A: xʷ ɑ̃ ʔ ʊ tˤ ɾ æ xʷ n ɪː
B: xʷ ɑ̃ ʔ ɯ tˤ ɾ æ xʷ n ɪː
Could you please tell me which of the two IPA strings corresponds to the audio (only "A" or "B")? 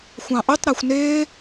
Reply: A